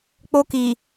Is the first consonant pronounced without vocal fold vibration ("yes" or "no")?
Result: yes